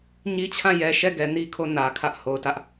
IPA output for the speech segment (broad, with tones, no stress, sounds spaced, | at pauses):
ɲ i˦ t͡ɕʰ ã˦˨ j ɛ˨ ʃ ɛ˦˨ ɡ ɛ˨ n i˦ kʰ o˦˨ n ä˨ kʰ ä˦ ʔ h o˨ ʊ̯ t ä˦ ʔ